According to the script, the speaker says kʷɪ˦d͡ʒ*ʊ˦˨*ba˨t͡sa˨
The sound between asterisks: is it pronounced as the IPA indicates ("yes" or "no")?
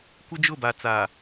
yes